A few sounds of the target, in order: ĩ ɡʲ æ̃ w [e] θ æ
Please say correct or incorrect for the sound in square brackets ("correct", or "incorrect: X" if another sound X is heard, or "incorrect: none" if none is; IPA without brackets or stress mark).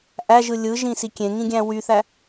incorrect: y